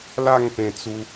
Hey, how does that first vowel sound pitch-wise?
falling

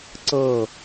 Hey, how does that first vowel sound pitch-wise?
falling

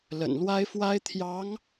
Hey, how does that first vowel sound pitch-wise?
low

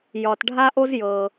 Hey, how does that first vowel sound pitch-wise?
low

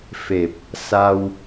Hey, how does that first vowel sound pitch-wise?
low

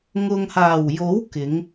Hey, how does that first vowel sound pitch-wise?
low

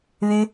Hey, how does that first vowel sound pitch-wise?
high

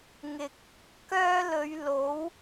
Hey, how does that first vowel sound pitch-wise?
low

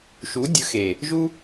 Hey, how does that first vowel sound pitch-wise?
rising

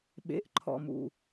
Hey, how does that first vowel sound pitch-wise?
rising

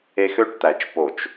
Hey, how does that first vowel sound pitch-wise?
high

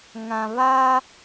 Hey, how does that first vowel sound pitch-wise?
low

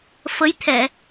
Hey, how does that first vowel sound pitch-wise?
rising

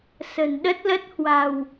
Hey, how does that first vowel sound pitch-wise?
low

